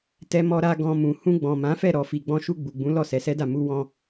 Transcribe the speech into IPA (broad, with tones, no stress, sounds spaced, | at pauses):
t ɛ˧ m ɔ˧ ɾ a˧ ɡ ɔ̃˧ m ũ˨ h ũ˧ ɡ͡b ɔ̃˨ m ã˨˦ f ɛ˦˨ ɾ ɔ˨ f i˨ ɡ͡b ɔ̃˧ ʃ u˧ ɡ͡b u˨ ɡ͡b ũ˨˦ l ɔ˦˨ s ɛ˨˦ s ɛ˦ d a˦˨ m u˧ w ɔ̃˧